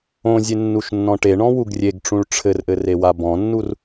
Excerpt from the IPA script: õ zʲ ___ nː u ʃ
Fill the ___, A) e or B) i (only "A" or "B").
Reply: A